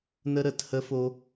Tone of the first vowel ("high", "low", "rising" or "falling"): high